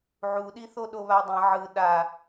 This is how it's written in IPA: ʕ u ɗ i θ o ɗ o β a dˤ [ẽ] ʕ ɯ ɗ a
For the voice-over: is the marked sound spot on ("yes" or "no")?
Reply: yes